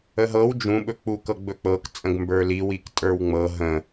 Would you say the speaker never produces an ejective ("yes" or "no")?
no